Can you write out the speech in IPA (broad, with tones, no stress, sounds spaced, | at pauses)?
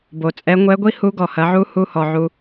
b o˩ t͡sʼ ɛ˧˥ ŋʷ ɛ˧˥ ɡʷ i˥ h u˧˥ ɡ ɔ˩ h ɐ˩˧ ʕ u˧˥ h u˧ h ɔ˩ ʕ u˧